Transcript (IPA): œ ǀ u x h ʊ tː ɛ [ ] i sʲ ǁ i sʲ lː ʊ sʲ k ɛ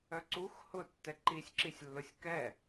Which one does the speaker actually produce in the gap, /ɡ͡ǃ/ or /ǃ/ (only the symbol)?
ǃ